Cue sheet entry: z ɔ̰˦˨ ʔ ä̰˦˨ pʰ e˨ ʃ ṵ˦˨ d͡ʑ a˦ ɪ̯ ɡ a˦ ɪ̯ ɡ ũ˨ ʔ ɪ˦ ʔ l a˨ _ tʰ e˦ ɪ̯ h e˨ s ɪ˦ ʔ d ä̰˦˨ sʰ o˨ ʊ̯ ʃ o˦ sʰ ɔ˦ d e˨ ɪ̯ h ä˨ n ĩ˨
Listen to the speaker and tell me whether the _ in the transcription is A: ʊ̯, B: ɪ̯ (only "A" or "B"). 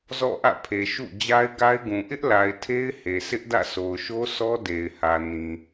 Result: B